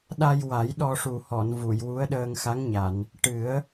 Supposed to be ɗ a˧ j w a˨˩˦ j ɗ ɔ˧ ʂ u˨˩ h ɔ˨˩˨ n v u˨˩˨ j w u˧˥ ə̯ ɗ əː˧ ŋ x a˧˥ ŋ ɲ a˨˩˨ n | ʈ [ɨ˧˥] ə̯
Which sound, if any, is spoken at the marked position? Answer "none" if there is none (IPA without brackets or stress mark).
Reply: ɨ˨˩˦